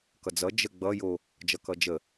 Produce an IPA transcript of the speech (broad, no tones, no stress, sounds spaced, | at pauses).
k ʌ d͡z ʌ d͡ʒ ə ɡ͡b ʌ j o | d͡ʒ ʌ k ʌ d͡ʒ ə